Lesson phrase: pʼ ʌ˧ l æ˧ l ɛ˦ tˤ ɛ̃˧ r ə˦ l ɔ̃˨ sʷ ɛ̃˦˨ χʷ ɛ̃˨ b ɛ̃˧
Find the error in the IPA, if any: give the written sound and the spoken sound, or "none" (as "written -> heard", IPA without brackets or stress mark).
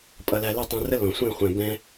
none